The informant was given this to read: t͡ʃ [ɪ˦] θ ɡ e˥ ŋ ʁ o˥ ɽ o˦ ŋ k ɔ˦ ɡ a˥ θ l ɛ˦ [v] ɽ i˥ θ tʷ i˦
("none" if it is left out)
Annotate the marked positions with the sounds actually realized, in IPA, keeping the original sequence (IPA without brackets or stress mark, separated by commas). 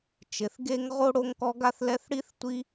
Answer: ɪ˩, θ